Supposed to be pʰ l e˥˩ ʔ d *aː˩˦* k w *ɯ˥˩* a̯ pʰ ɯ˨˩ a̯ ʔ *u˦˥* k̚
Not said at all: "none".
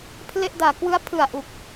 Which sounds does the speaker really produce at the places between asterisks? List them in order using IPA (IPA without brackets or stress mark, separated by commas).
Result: aː˩˦, ɯ˦˥, u˨˩